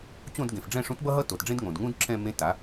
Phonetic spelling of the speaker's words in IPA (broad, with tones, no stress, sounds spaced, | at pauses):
t͡ɕ õ˥˧ d ɡ ẽ˩ f ɖ͡ʐ ɛ̃ː˥˧ ʂ ũ˥ t b ʌ˥ ɦ ʌ˥ t o˩ t ɖ͡ʐ ẽ˥ d ŋ õ˩ d ŋ ũː˥ d ǁʰ ɛ̃˥˧ m ẽ˧˥˧ t a˩˥